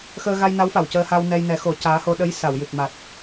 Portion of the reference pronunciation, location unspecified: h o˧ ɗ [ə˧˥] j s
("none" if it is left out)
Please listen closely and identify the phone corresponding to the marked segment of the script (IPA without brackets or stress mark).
ə˧˥